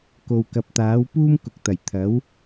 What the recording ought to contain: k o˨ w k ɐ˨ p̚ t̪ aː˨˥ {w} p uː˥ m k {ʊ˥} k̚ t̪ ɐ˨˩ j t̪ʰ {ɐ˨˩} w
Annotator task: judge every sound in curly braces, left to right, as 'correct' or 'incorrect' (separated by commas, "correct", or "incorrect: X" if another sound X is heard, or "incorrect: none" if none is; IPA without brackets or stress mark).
correct, incorrect: ʊ˨, incorrect: ɐ˨˥